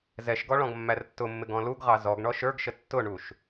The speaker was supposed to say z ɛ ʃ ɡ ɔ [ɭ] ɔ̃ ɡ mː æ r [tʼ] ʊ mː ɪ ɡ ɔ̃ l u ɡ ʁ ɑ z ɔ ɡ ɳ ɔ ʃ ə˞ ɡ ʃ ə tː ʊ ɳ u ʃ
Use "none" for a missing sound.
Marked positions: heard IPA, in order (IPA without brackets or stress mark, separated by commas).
ɭ, tː